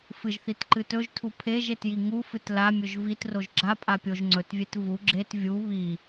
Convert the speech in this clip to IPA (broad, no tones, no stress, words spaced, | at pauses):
fɨʒθitǃɨ tɵʒtʰu pʰeʒetji ŋufɨt lamʲɵʒ vitroʒ ɡ͡ǁapʼa pʲoʒ ŋ͡ǀɵtvʲet vu ɡ͡ǁet vʲu βi